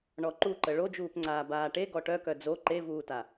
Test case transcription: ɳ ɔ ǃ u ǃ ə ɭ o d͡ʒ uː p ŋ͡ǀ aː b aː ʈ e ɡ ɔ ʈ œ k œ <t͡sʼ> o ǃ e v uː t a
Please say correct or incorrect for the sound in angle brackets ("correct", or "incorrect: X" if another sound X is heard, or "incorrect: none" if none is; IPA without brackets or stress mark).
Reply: incorrect: d͡z